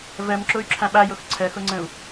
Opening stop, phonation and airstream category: click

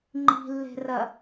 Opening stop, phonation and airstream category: click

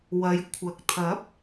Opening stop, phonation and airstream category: aspirated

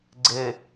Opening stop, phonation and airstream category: click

